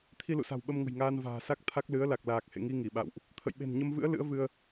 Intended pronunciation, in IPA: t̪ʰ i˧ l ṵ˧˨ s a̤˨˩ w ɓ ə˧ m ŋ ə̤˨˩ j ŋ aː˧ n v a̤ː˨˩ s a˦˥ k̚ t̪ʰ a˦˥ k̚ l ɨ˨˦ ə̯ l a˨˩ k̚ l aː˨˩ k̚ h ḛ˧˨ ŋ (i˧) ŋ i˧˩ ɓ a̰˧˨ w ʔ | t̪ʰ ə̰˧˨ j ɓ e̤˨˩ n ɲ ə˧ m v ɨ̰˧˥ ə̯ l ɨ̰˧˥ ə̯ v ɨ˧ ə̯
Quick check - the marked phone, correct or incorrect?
correct